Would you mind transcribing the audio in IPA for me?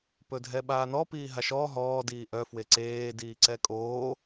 p ɵ dʱ ɛ ɓ aː n ɔ p iː ɦ a ʃ ɔː ɦ ɔː d iː ʔ œ f w e ǀ eː d iː ǀ ɛ kʼ oː

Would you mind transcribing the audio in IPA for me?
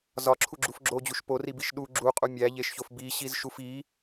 z ɒ ǁʰ u ɡ͡ǁ u f ɡ͡ǁ o d͡ʑ u ʃ p o r i b i ʃ ɗ u ɡ͡ǁ u qʼ u mʲ æ ʎ e ʃ ç o f b i ɕ i z ʃ u f i

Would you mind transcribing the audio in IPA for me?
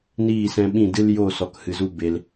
n iː˦˨ s ɛ̃˧ ɓ ĩ˦˨ d ɨ˦ l j o˦˨ s ɔ˨ k h ɨ˨ z u˧ b e˧ l

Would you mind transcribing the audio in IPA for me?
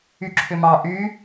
y ǁʰ ʏ m ɑ ʔ y

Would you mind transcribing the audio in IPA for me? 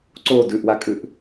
ǀ o d ʉ ʔ w a kʼ ʉ ʔ

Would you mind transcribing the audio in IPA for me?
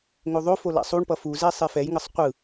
ŋ o ðˤ o f o l a̰ sˤ u ɳ p ʌ f u z ɛ sˤ e f ɛ j ŋ ʌ sˤ qʷ ɯ

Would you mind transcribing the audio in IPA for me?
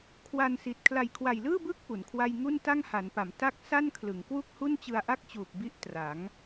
kʰ w a˧ n s i˨˩ t̚ kʰ l a˨˩ j kʰ w a˨˩ j l ɯː˥˩ b ɯː˦˥ k̚ p u˩˦ n kʰ w a˥˩ j ŋ u˥˩ n t a˥˩ ŋ h a˩˦ n p a˩˦ m t a˥˩ k̚ s a˥˩ n kʰ l ɯ˩˦ ŋ k w u˥˩ k̚ h u˥˩ n t͡ɕ ɯ˧ a̯ ʔ a˥˩ k̚ t͡ɕ uː˨˩ p̚ b i˥˩ ʔ t r a˩˦ ŋ

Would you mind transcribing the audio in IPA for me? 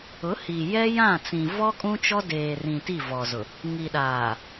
ʊ˨˦ h iː˨ j ɛ˦ j ã˦˨ t͡s ĩ˨ v ɔ˦ kʼ ũ˦ t͡ʃ ɔ˦ d eː˨ r ĩ˨ t i˦˨ v ɔ˨ z ʊ˨ | ŋ i˨ ɗ aː˨

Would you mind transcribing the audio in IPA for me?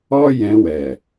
ɔ˦ j ɛ̃˧ w ɛ˨

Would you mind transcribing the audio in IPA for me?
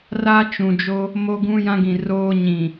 r a˦ t͡ʃ ũ˨ d͡ʒ o˦ | m o˦ ɡ ũ˦ j ã˦ ɡ ĩ˨ r oː˦ ɲ ĩ˨

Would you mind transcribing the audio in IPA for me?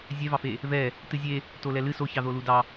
zʲ ɛ v ɑ f e | v ɛ | t ɨ zʲ e | t o l ɛ l ɨ s o ç ɑ ð o l u d ɑ

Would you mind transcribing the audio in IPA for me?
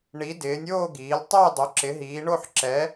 ɳ i˨˦ d ɪː˨˦ nʲ oː˥˧ ɡ iː˨˦ l tˤ ɛ˥˧ j dˤ o˨˦ ǁ ɪ˨˦ ɦ iː˨˦ ɳ o˥˧ ħ ǁ ɛ˨˦

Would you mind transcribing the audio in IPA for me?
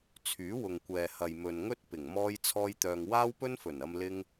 t͡sʰ yː˨˥ w ʊ˨ ŋ kʷ ɛː˨ h ɐ˨ j m ɵ˨ n ŋ ɵ˥ t̚ p ɪ˨˩ ŋ m ɔː˥ j t͡sʰ ɔː˥ j t̪ œː˧ ŋ w aː˥ w p ɵ˥ n f ɵ˨˩ n ɐ˧ m l ɪ˥ ŋ

